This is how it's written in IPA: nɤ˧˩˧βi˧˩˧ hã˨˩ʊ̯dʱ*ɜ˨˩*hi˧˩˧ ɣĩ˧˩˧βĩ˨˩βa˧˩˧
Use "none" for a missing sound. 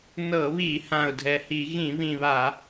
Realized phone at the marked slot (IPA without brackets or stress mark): ɛ˨˩